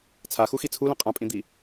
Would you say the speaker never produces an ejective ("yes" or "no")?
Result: no